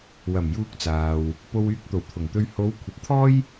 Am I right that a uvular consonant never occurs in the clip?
yes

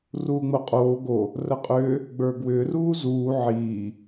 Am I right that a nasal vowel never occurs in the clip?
yes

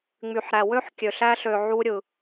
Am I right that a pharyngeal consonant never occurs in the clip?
no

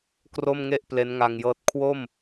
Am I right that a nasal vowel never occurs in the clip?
yes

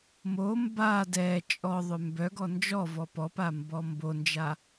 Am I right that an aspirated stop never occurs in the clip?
yes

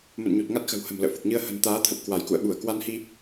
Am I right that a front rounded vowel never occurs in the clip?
yes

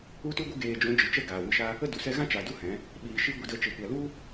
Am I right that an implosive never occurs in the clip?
no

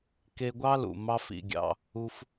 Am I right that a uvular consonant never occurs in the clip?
yes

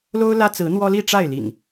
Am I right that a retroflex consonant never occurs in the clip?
no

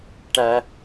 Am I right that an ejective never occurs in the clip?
yes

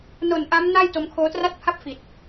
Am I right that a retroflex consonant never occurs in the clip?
yes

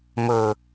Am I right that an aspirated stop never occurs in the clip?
yes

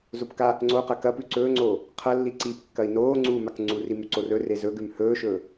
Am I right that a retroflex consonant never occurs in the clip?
yes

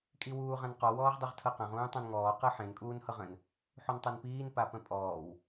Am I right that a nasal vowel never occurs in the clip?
no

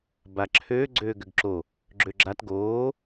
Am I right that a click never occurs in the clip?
no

